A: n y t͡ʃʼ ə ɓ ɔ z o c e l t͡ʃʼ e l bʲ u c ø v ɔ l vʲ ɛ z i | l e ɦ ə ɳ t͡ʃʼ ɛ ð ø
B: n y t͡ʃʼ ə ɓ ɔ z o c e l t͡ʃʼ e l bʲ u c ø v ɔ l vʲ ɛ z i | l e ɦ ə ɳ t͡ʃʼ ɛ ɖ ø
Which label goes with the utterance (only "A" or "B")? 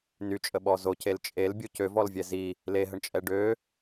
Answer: B